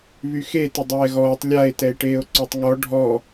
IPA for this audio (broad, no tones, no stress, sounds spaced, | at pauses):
β y x e t ə dˤ ɛː ɣ ɔː tˤ lʲ a e̯ t ɛ e̯ ʈ eː o̯ ǀ o tˤ ŋ ɔ ɖʱ ɔ